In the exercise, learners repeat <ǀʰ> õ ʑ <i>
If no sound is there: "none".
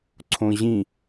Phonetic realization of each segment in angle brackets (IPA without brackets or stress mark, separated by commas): ǀʰ, ĩ